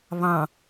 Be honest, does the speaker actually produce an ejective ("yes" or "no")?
no